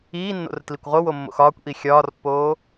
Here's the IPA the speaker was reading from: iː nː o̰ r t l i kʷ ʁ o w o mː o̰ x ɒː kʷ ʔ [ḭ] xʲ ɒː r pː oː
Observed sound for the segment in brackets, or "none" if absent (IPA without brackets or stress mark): i